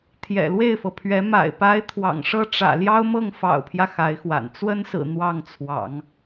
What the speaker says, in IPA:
t̪ʰjɛ̰˨˩lwe˥˩ɪ̯fɤ˩pʰɥɛ˧˥ ma̰˨˩ɪ̯pa˧˥ɪ̯ t̪ʰwɑ̰˨˩ŋʂɤ˥ ʈ͡ʂä̰˨˩ljɑ˥ʊ̯mɤ˥˩ŋ fɑ̰˨˩ʊ̯pʰjä˦ xa˧˥ɪ̯xwa̰˨˩n t͡swə˥nsɹ̩˨˩ n̪wɑ˥˩ŋt͡sʰwɑ̰˨˩˦ŋ

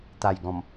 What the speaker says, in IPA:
t̪a˨˩j ɡɔ̃˨˩m

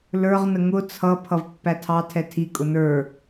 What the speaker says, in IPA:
lə˞ʁnə ŋʊ t͡sʰʌ pʰʌvpːætʰɑ tʰɛtʰi kʼʊnə˞

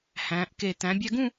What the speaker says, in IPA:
hæ̃˩˧ʔke˧˩ t̪æ̃˩˧bʲæ˧ɡũ˥˧

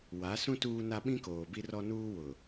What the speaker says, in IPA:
wa˨˦sũ˦ tuː˦na˦ ɓĩ˦koː˨bi˦ rɔ˦ nuː˦wʊ˨

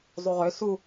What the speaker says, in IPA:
zˤuʁø su

